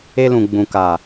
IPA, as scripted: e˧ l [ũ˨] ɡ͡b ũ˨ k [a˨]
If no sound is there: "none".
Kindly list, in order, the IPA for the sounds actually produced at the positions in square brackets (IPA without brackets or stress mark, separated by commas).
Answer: ũ˨, a˨